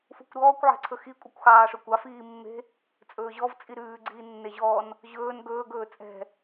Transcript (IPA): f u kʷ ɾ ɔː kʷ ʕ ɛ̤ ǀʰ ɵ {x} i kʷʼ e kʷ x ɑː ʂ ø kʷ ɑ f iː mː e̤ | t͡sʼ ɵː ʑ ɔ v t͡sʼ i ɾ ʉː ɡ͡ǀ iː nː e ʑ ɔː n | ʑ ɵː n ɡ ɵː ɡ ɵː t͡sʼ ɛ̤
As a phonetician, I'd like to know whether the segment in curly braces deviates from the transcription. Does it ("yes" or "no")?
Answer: no